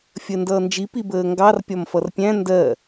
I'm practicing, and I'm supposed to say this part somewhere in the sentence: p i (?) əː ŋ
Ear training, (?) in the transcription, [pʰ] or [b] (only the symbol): b